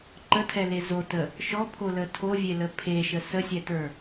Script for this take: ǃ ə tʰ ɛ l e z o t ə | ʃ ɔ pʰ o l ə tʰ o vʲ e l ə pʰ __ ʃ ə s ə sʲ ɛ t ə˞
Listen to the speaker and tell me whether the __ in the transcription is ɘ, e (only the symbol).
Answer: e